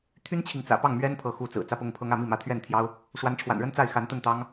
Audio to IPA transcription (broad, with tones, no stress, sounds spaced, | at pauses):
t̪ʰ y˥ n t͡ɕʰ i˨ ŋ t͡s ä̰˨˩ p ɑ˥˩ ŋ m ɥ ɛ˥ n pʰ ɤ˧˥ x u˧˥ t͡s ɹ̩˨˩ t͡s ä˥˧ p ʊ˥˩ ŋ pʰ ɤ˥ ŋ ä˥˧ m i˥˩ m ä˧˥ t̪ʰ ɥ ɛ˥˩ n t̪ʰ j ɑ˥ ʊ̯ | ʂ w a˧˥ n ʈ͡ʂʰ w a̰˨˩ n ɻ ə˥ n t͡s a˥˩ ɪ̯ x a˧˥ n t̪ ə˥˩ n t̪ ɑ˥ ŋ